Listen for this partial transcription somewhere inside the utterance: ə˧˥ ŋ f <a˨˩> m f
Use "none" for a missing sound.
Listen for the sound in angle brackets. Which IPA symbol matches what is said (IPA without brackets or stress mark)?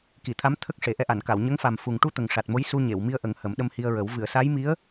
a˨˩